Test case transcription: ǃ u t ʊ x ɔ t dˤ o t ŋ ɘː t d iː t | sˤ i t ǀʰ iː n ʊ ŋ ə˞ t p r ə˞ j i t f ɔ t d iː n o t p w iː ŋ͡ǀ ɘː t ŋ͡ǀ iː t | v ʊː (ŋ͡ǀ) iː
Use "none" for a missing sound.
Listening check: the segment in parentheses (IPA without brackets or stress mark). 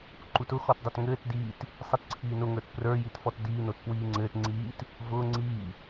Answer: ŋ͡ǀ